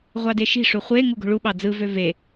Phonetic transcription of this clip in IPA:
ʁʷ ɑ d e ʃ i̤ ʂ u χʷ e ŋ u ɡ o̤ ɭ u ɓ ɑ d͡z ɯ v ø v e

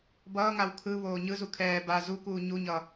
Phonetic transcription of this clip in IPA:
b ʌː ŋ a w kʰ ɯ β oː ɲ ɯ z u kʰ ɛː b a z u k uː ɲ u ɲ ʌ

